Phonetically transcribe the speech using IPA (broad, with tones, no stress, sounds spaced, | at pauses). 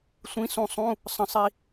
sʷ ĩ˧˥ s ũ˧ sˤ ũ˧˥˧ | sˤ ə̃˧ sˤ i˧